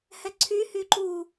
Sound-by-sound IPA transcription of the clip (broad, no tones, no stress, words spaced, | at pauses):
hɛǀʰy hyǃu